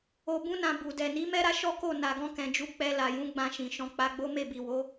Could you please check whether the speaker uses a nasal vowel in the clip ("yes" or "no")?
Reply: yes